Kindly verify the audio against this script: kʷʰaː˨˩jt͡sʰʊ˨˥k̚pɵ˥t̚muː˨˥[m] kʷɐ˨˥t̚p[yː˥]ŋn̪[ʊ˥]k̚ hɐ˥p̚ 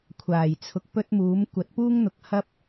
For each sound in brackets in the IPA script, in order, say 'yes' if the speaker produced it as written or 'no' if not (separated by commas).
yes, no, no